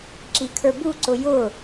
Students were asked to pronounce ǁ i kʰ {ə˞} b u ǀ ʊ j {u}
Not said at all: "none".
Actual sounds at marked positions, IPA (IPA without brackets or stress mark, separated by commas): ə˞, ʊ